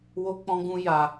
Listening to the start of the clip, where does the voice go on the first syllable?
high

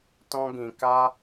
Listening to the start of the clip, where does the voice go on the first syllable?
high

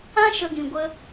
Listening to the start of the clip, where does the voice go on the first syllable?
high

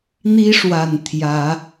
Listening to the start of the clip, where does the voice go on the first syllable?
high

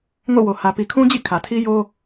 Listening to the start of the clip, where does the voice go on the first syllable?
falling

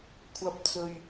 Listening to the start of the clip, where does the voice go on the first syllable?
low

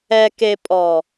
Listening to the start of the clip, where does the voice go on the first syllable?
low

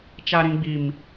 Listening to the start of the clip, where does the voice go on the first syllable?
high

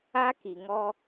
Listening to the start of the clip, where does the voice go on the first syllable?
high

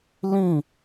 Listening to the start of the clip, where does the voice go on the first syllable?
falling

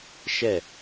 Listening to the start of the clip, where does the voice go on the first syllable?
falling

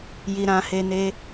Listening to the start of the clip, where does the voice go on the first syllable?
low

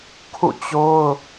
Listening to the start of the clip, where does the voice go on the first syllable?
falling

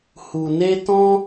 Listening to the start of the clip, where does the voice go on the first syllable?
low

